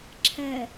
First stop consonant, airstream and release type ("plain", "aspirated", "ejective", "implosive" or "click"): click